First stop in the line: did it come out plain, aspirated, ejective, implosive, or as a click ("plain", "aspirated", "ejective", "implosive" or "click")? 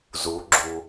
click